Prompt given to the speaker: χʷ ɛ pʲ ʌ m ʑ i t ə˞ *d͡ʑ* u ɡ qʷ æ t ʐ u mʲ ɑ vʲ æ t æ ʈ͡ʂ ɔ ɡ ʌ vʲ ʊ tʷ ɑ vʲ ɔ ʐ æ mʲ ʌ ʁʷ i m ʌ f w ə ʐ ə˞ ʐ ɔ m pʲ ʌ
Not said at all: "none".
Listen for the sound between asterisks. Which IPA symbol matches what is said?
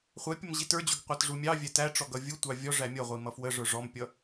d͡ʑ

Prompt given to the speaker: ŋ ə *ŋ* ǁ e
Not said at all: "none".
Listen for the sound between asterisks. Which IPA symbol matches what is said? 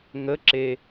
none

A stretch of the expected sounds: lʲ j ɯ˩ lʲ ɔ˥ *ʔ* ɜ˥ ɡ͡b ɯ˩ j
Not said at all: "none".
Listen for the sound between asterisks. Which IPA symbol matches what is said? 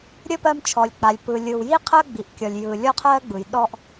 qʰ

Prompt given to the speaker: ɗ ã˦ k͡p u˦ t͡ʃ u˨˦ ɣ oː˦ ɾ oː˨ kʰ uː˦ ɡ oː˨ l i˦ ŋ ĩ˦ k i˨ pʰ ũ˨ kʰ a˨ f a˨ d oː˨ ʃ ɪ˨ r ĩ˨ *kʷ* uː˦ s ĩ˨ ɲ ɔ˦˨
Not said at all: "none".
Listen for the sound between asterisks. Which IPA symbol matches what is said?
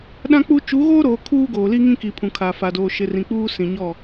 k͡p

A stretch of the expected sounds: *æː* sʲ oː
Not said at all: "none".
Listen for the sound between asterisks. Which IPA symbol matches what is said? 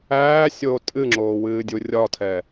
æː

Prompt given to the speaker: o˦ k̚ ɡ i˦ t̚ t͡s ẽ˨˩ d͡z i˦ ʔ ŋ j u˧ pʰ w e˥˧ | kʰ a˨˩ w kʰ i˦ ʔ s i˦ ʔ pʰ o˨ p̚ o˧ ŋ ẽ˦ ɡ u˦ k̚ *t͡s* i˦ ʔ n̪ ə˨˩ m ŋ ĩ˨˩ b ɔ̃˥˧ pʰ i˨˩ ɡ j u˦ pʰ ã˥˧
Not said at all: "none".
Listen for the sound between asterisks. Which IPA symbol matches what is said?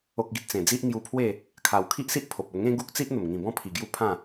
t͡s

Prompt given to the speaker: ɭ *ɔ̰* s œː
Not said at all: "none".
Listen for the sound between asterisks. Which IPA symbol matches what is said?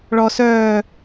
ɔ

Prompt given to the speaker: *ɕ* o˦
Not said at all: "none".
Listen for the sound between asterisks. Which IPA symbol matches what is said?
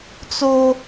t͡s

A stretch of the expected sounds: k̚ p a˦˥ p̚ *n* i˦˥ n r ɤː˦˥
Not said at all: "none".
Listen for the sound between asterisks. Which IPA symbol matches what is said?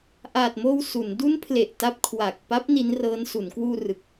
n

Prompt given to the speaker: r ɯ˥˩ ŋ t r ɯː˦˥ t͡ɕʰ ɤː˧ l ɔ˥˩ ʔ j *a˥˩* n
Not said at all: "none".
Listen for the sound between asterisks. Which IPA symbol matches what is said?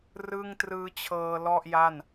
a˥˩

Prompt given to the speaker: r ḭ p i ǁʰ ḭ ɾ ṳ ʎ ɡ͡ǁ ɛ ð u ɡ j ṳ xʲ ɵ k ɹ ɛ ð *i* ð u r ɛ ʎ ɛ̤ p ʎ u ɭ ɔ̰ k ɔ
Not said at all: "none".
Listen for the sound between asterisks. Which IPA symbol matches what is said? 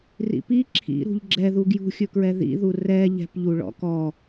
ḭ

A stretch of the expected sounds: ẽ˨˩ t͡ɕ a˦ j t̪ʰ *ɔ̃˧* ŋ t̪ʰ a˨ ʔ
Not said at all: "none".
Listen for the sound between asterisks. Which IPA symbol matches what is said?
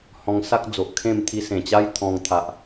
ɔ̃˧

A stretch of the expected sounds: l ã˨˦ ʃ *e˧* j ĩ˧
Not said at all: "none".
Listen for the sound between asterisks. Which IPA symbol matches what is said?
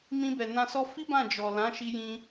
i˧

